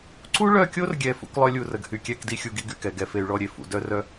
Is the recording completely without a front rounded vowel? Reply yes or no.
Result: no